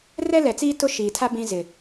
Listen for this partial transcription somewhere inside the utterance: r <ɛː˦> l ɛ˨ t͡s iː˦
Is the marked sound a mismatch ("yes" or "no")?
yes